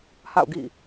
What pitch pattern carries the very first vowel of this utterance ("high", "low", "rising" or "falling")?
falling